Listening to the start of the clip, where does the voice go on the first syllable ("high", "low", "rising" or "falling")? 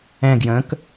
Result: falling